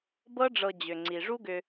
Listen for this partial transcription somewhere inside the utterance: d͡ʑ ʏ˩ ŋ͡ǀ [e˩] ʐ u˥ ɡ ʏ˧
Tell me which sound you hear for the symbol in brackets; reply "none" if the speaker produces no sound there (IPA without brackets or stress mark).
i˩